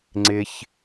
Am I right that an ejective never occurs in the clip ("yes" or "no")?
yes